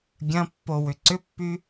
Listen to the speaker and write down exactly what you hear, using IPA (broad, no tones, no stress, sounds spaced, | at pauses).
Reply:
ɡʲ ɐ̃ pː o w ʏ ǀ ʏ pː y